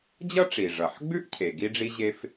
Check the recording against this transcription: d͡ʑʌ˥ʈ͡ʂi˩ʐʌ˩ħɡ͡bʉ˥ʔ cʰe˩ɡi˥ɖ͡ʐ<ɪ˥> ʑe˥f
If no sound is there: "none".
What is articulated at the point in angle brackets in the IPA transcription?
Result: i˥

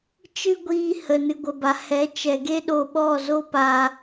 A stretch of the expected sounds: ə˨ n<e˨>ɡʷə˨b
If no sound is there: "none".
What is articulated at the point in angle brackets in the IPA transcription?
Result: ɨ˨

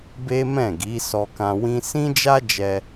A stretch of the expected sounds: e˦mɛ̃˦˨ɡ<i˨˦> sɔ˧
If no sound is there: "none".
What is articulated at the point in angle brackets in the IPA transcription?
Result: i˨˦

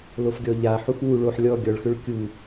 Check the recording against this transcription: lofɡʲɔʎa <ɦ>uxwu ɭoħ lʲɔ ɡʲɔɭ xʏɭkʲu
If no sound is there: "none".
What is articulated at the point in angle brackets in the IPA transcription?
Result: ħ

